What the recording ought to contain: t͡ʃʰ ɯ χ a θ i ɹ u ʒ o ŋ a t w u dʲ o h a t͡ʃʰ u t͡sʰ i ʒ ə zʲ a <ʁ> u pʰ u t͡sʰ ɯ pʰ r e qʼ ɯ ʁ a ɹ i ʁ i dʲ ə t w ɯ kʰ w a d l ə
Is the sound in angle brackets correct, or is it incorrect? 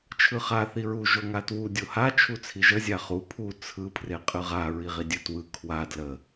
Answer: incorrect